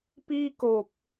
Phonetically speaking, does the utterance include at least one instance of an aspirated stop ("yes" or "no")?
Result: no